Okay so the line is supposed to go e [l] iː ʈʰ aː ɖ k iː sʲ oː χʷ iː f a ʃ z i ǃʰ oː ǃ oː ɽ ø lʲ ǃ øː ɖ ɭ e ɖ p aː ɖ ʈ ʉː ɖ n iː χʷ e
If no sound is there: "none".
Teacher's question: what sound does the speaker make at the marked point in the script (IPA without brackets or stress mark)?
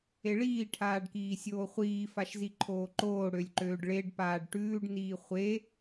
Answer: ɭ